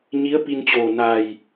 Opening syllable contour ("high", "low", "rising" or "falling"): rising